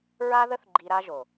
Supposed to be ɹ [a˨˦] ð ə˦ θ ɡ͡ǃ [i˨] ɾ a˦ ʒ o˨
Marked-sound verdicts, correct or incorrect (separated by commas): incorrect, incorrect